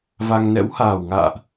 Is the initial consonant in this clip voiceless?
no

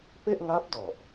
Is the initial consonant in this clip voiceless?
yes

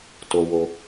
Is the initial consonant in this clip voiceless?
yes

